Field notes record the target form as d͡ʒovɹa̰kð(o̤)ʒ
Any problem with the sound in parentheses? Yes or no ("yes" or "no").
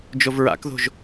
no